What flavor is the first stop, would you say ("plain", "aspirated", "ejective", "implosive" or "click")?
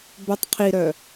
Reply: plain